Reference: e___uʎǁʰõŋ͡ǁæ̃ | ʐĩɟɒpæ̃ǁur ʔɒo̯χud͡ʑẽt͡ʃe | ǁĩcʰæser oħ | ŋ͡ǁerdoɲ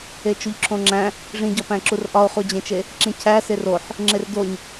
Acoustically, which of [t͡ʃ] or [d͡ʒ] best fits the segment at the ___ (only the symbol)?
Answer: t͡ʃ